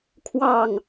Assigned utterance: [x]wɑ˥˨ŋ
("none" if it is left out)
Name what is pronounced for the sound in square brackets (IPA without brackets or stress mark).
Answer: kʰ